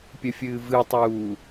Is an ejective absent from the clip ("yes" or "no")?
yes